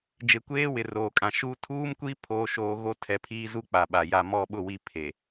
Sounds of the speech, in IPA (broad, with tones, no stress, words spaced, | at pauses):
d͡ʒe˨kʷeː˦wɪ˨ roː˨kʼã˨ʃuː˦ tʰuː˦mkʷi˦ pʰoː˦ʃoː˦ ɣo˦tʰɛ˨˦pʰiː˦ zu˦k͡pa˨ɓa˨ ja˨mɔ˦˨ɓʊ˦˨wi˦˨ pʰe˨